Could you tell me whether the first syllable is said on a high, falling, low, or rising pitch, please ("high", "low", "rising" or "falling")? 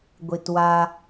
low